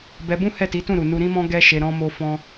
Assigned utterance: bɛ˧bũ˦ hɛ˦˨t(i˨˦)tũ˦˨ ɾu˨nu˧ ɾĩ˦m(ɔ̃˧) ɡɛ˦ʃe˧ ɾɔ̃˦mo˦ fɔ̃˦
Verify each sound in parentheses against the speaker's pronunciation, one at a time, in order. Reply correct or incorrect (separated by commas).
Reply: correct, incorrect